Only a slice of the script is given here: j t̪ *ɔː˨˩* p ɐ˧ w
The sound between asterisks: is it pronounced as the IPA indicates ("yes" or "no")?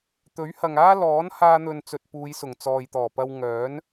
yes